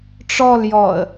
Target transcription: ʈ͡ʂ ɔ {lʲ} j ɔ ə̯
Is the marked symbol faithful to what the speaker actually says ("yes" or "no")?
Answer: no